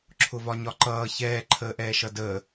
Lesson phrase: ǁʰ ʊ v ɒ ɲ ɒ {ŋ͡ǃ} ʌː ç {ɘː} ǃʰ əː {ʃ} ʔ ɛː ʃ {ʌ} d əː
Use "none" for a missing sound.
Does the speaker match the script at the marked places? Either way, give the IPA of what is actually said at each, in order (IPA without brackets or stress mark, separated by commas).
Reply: ǃ, ɛː, none, ʌ